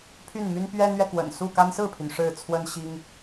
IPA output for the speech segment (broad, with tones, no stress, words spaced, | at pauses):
pʰy˥˩nmy˥npɥɛ˥nɥɛ˨ kwə̰˨˩n su˥˩ka˥n sɹ̩˥˩pʰy˩n ʂɻ̩˥˩t͡sʰwə˥n ɕi˥ŋ